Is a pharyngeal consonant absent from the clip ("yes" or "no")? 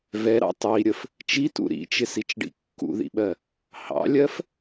yes